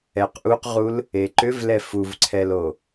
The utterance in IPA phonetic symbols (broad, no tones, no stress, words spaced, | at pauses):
ɛqʔuqʁul | eǃʏvlɛ fuvǀʰɛlo